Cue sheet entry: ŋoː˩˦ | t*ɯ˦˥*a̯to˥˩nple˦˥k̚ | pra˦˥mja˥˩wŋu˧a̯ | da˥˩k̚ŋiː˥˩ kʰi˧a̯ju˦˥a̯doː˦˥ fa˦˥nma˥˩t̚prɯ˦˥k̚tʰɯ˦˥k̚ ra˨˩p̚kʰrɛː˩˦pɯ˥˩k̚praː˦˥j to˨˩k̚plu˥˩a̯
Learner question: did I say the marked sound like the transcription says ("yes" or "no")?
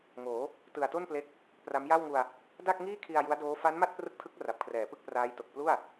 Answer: no